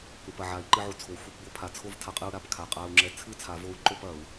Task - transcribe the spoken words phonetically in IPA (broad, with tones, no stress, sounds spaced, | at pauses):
ɾ u˨˩ p ɐ˨˩ ʕ a˨˩˦ i̯ ǃ ɨ˧ ʕ u˨˩ t͡sʰ o˨˩ xʷ ɨ˥˨ p b o˥˨ pʰ a˨˩ t͡sʰ o˥˨ v tʰ a˧ qʼ ɨ˧ u̯ ɾ a˨˩ p kʰ a˨˩ qʼ a˧ u̯ ŋ͡ǁ ɛ˧ t͡sʰ ɨ˥˨ t͡sʰ a˨˩˦ v o˧ u̯ ǃ o˥˨ p ɐ˨˩˦ u̯